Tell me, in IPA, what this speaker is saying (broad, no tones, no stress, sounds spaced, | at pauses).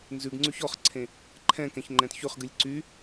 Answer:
n z ʉ ɡ ŋ͡ǀ ʉ ç ɔ χ ǀʰ ẽ | ǃʰ ɛ̃ k ɛ̃ ç ŋ͡ǃ ɛ̃ t ç ʉ χ ɡ ɨ lʲ ǀ y